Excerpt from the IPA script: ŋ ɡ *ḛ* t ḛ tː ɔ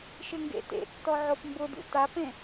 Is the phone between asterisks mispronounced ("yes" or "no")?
no